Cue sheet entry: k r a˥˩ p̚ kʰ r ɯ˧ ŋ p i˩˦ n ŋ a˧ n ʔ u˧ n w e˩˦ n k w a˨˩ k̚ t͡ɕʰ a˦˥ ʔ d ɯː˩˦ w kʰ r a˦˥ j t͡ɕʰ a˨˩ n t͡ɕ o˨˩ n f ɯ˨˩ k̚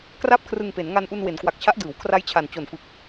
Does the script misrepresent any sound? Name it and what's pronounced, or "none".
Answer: i˩˦ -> e˩˦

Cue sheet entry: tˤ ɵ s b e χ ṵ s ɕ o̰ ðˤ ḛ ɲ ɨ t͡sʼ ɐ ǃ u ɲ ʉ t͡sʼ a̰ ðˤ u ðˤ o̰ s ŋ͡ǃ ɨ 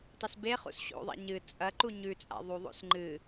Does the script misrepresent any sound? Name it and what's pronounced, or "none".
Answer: none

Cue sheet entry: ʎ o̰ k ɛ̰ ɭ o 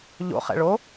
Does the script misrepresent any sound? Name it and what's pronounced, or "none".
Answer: k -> χ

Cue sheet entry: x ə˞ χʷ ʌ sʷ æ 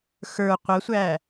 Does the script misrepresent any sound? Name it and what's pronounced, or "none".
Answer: χʷ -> qʷ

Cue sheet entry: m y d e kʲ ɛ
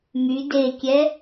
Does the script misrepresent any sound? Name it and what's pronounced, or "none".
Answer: none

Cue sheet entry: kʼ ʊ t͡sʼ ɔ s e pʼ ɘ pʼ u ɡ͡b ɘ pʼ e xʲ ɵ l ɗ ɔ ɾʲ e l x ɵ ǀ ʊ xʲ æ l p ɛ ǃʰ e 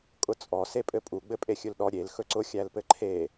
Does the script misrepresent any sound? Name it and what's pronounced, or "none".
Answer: ɛ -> ɘ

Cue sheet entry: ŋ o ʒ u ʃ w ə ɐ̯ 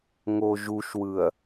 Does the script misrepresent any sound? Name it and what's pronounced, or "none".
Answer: ə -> ɯ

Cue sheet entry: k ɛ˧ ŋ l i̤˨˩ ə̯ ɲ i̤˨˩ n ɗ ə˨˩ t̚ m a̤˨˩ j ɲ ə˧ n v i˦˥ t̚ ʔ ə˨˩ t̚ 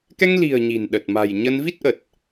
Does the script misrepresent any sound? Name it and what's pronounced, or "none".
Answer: none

